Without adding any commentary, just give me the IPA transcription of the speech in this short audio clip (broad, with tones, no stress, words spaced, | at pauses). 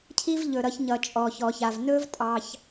cʰi˦vʎɵ˩ɾʌ˨çɲʌ˩ t͡ʃʼɔ˩çɔ˩ça˩v nɵ˥v tʼɑ˨ç